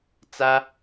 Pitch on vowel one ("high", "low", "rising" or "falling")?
high